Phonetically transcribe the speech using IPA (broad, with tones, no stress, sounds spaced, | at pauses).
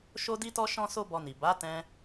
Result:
ʃ o˧ d i˧ t ɔ˧ ʃ ɔ̃˦ s o˦ b ɔ˧ n i˨ b a˨˦ t ɛ̃˧